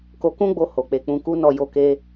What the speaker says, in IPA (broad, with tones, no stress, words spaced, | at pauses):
ko˧kũ˦ɡ͡bo˧ ho˨k͡pe˨ k͡pũ˧ku˦nɔ˦˨ jo˧ke˧